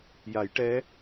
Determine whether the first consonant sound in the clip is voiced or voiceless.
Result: voiced